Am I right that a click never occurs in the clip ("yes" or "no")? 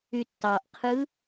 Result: yes